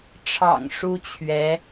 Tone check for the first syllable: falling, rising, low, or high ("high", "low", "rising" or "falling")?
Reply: low